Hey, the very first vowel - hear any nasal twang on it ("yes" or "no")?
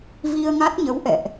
no